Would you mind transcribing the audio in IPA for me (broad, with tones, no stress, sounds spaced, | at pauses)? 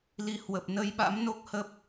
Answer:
l i˨˩ h w ə˨˩ p̚ n ə˧ j ɓ a̰˧˥ m n o˦˥ k̚ h ə˦˥ p̚